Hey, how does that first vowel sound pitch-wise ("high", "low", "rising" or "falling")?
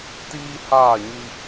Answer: high